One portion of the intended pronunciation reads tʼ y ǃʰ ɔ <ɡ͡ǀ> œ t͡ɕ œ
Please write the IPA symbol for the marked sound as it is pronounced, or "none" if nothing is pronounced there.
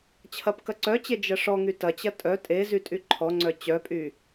ŋ͡ǀ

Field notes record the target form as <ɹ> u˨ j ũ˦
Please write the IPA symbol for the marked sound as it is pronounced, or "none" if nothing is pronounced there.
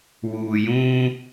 w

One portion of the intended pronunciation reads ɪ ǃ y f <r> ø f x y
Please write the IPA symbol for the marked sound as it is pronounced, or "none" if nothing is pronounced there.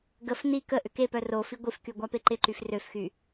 r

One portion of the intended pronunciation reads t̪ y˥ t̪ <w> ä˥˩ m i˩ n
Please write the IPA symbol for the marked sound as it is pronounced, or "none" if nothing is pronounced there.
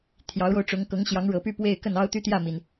j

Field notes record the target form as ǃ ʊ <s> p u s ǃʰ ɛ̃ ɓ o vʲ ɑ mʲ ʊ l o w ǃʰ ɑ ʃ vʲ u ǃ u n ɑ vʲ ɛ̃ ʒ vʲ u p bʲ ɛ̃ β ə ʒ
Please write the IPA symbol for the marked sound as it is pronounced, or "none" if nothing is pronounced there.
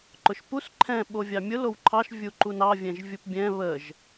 ʃ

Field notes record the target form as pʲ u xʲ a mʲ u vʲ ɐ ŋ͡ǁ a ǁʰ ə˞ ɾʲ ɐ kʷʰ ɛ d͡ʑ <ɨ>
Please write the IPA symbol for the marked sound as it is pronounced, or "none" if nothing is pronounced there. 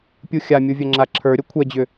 ʏ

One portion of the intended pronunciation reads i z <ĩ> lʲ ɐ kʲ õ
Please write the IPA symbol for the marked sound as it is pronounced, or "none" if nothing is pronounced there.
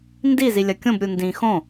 i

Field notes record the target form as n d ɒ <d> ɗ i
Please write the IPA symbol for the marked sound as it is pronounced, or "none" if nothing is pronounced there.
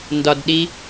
d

